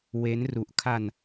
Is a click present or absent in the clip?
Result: absent